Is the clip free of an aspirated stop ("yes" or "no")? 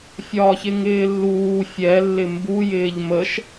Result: yes